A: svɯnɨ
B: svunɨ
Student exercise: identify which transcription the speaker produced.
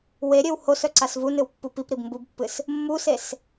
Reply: B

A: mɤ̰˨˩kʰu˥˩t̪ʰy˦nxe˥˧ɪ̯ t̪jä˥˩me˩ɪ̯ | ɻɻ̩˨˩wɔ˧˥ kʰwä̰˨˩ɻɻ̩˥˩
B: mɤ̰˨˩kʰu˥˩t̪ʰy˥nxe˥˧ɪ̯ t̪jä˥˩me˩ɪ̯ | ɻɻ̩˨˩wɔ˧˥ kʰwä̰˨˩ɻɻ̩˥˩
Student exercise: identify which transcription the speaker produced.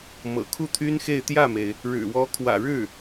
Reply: B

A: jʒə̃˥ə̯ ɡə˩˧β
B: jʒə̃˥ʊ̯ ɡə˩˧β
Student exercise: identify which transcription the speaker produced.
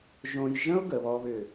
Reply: B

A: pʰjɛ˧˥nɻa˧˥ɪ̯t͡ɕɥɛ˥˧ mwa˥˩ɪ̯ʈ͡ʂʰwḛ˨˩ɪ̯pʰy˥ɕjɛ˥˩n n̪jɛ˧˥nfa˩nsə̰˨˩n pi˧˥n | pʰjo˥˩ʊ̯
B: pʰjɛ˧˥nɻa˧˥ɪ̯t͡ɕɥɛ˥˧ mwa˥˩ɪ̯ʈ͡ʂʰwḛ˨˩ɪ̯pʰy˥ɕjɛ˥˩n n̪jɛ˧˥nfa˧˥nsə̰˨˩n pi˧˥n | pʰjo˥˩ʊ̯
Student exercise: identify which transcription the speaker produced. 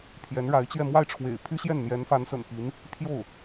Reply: B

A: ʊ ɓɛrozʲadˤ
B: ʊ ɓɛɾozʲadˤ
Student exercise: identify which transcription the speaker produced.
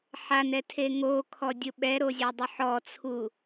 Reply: B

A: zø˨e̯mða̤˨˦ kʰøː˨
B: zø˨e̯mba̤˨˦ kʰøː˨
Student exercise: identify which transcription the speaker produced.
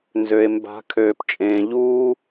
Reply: B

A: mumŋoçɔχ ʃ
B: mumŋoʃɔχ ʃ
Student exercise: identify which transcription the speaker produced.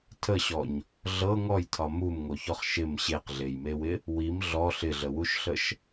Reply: A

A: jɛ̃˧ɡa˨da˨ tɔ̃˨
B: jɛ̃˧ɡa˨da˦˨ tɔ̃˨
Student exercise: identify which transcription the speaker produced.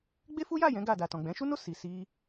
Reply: A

